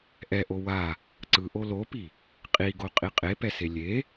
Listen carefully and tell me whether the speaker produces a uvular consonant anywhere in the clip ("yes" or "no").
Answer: yes